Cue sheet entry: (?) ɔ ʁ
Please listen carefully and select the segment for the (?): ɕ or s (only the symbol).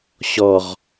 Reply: ɕ